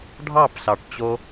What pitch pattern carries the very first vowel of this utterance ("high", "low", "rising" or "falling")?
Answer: falling